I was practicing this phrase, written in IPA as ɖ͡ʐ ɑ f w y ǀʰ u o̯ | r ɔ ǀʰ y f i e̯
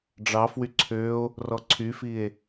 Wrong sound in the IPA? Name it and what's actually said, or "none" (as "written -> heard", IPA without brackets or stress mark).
u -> ø